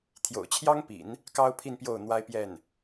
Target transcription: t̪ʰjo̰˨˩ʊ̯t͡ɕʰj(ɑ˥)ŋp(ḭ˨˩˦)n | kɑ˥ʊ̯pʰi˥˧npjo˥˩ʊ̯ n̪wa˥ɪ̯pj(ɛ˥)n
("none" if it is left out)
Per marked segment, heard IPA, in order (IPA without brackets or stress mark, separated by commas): ɑ˥, ḭ˨˩˦, ɛ˥˩